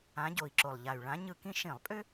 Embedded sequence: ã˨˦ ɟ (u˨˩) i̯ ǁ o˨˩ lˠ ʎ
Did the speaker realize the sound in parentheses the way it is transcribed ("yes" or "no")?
no